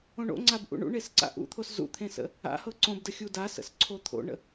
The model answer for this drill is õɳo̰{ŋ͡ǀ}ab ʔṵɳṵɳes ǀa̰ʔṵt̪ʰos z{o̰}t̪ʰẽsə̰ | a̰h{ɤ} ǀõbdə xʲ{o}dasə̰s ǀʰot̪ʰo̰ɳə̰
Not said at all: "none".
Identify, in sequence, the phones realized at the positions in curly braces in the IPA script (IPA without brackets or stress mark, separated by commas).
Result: ŋ͡ǀ, ṵ, ɤ, u